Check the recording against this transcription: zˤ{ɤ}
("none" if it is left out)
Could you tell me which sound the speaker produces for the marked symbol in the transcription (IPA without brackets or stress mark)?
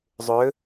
ɵ